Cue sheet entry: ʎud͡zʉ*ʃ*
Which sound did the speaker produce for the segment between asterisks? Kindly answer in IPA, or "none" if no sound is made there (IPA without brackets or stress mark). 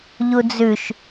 ʃ